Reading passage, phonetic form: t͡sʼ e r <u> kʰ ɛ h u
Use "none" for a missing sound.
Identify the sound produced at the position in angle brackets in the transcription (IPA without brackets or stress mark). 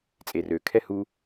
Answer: ø